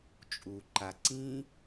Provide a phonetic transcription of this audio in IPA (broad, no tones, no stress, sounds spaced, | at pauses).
t͡ʃʼ u ǃ a ǀ ĩ